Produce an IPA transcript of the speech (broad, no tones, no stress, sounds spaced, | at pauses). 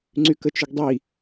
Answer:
ŋ͡ǀ y k ə t͡ʃ ʏ ɡ dˤ i